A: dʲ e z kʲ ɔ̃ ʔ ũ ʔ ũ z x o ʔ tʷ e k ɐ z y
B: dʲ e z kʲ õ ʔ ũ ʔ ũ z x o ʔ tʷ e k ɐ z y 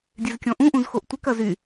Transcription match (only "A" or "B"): A